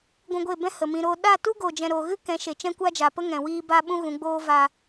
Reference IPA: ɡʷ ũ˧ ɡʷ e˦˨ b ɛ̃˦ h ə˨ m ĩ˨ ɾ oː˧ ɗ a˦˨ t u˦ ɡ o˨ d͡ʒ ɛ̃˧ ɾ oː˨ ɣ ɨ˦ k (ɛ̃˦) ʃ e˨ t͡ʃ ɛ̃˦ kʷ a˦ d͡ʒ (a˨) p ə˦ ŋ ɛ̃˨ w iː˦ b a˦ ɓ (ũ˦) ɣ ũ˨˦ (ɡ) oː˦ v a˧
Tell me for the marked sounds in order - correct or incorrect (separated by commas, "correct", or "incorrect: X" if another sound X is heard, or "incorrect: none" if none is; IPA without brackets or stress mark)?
incorrect: ɛ̃˨˦, correct, correct, incorrect: ɡ͡b